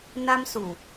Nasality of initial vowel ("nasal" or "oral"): oral